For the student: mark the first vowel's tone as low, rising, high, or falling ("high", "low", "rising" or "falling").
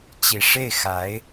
low